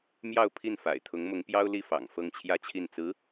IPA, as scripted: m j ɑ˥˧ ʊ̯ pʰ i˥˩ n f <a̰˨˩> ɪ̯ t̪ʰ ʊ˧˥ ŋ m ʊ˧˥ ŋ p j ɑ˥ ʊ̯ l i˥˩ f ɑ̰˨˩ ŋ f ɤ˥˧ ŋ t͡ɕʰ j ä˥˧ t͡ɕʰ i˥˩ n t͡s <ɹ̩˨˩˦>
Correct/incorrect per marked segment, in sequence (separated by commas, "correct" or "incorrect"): correct, incorrect